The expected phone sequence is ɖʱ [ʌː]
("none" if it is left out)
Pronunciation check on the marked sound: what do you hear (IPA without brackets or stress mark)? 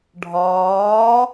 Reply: ɒː